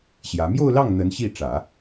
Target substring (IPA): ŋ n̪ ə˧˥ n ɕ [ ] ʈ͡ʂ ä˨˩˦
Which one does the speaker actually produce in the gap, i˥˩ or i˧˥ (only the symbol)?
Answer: i˥˩